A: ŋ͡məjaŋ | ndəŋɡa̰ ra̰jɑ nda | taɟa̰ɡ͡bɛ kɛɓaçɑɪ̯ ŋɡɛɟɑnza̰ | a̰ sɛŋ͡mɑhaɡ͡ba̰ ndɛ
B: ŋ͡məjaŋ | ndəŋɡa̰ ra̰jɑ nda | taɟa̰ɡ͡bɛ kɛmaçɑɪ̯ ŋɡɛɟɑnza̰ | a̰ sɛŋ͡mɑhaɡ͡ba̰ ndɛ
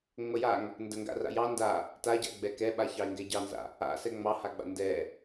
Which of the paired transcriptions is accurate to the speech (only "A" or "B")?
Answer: A